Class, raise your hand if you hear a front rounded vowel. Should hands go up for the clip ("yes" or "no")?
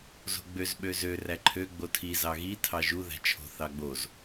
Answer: yes